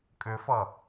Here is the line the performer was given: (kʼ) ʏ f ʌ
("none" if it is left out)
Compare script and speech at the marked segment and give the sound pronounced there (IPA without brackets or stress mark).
kʼ